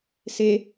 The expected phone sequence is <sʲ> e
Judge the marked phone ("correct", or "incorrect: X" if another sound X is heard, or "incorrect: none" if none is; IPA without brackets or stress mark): incorrect: s